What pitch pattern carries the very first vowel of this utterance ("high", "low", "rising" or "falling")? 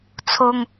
high